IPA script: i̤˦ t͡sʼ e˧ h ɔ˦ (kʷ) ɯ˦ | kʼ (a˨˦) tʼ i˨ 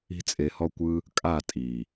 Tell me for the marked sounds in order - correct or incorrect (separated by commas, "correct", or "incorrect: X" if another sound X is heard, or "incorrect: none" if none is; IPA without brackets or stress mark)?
correct, incorrect: a˦˨